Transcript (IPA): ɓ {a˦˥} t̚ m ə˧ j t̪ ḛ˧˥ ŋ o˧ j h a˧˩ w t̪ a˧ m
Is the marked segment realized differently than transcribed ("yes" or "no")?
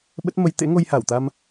yes